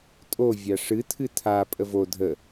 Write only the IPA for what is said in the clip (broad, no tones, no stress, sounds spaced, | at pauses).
tʼ o vʲ a ʂ ɨ tʰ ɨ tʰ a pʼ ə v o dʱ ə